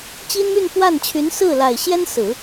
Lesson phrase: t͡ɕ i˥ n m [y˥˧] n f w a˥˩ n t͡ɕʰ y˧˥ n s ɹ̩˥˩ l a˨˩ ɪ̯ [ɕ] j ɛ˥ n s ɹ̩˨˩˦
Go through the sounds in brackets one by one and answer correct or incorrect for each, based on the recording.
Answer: correct, correct

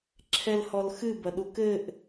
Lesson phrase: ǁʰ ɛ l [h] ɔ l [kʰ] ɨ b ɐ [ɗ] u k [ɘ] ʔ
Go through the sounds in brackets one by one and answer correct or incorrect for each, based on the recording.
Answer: correct, incorrect: x, correct, correct

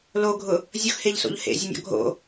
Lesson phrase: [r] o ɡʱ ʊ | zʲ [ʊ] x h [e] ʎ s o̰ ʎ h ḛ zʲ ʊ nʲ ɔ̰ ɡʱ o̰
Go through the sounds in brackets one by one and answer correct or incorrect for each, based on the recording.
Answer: incorrect: l, correct, correct

